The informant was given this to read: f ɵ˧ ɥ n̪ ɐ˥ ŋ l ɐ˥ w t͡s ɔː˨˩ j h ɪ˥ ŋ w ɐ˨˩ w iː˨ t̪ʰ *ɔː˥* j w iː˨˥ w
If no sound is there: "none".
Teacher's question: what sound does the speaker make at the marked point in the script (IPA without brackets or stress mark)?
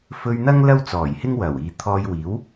ɔː˧